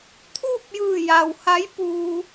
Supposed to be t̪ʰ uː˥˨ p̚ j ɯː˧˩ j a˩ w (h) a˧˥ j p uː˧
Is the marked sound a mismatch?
no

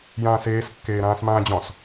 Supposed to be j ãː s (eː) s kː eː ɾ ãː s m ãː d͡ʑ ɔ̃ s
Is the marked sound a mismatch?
no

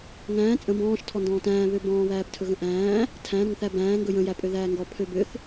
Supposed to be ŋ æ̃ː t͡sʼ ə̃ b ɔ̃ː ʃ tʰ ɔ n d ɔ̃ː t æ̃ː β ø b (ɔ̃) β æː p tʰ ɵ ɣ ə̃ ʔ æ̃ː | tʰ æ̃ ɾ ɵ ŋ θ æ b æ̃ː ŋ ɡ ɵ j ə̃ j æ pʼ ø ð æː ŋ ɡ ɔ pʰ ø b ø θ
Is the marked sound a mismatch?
yes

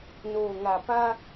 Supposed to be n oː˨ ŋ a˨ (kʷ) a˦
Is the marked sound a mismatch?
yes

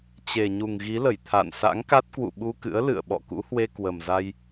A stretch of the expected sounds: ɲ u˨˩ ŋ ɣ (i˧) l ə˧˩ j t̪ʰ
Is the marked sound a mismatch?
yes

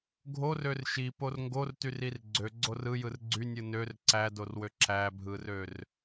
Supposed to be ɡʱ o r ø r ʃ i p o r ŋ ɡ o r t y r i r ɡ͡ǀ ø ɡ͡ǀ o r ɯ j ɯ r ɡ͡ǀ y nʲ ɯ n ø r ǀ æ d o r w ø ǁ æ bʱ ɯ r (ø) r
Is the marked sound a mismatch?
no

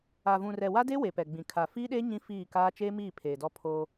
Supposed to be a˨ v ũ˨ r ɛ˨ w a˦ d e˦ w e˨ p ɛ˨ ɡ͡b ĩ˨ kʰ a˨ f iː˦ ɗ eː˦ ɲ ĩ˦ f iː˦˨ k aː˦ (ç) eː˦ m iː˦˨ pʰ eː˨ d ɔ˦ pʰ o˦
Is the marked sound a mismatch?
yes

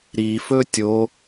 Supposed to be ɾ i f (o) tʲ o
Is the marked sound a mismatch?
yes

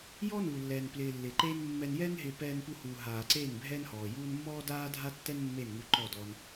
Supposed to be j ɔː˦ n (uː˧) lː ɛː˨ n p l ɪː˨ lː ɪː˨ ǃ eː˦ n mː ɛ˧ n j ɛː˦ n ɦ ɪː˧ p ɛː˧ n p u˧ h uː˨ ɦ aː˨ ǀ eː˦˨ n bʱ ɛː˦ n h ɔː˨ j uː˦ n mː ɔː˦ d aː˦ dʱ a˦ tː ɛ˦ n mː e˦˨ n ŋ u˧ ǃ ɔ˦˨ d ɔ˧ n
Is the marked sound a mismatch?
yes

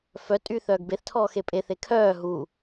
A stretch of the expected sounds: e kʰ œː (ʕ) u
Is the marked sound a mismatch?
yes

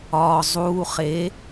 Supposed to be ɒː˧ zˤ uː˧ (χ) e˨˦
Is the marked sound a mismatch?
no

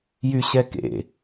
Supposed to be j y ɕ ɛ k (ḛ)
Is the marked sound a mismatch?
no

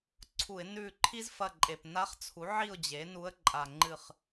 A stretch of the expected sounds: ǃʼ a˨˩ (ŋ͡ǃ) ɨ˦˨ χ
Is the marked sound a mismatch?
no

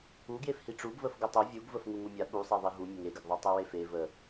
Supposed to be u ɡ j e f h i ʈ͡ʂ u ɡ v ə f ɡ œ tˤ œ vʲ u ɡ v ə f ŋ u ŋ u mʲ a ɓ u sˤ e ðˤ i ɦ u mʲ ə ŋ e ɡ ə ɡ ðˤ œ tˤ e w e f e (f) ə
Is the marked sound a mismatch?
yes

